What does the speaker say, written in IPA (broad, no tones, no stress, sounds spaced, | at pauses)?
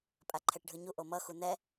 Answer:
pʼ a ǃʰ ɛ ʈ ɖʱ ɯ ɲ u ʔ o m ʌ x u n ɛ